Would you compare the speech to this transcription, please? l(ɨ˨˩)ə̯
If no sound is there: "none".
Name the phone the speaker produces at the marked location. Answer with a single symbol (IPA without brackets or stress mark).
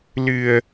ɨ˨˩